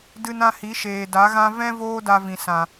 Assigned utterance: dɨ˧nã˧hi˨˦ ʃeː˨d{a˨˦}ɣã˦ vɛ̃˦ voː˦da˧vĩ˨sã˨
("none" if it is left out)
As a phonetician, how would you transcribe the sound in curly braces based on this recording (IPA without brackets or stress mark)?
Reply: a˨˦